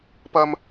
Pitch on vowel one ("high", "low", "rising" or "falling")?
high